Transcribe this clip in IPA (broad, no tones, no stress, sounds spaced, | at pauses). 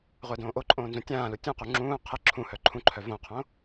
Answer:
ʁʷ ɘː d õː ʔ o ǃʼ õː n z ũ tʲ ãː l u tʲ ũ q u ŋ͡ǁ ũː qʰ ɘ ǁʰ ũ h œ ǃʰ ũ ǃʰ œ v õ qʰ õ